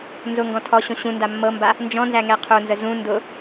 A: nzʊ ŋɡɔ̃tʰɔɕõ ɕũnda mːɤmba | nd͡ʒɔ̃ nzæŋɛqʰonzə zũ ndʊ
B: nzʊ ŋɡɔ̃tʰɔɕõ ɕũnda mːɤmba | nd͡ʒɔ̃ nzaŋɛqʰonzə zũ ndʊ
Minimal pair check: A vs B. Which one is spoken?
A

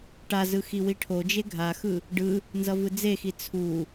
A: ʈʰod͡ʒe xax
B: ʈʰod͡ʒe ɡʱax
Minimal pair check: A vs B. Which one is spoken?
B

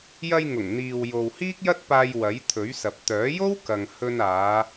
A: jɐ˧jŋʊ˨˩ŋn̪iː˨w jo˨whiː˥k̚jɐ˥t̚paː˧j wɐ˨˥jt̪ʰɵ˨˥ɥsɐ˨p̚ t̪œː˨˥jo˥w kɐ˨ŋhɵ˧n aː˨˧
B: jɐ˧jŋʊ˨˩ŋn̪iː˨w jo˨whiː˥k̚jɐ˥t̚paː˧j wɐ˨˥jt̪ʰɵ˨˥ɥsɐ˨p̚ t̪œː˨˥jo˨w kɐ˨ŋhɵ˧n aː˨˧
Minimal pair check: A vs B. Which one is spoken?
A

